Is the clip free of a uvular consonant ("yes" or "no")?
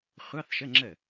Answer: no